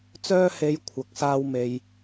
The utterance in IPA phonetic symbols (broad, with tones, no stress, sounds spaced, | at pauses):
t͡s œː˥ h e˧ j kʷʰ ɐ˧ k̚ s aː˥ w m e˧ j